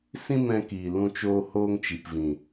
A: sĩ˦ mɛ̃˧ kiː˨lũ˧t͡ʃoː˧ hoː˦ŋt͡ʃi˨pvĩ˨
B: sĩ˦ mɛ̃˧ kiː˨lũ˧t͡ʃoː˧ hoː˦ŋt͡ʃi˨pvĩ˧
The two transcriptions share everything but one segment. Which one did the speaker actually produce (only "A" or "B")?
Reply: A